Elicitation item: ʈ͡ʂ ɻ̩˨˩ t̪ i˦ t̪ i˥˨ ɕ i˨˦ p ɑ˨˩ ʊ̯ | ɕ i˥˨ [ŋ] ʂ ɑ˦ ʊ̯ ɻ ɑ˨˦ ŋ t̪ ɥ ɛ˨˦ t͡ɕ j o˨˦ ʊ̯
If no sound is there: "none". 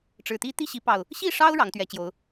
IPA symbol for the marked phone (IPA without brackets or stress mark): none